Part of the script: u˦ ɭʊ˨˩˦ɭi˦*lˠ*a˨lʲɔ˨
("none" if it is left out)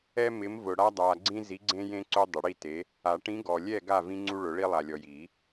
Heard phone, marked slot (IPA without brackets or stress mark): lˠ